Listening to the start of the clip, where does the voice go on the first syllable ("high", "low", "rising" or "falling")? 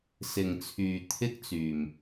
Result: low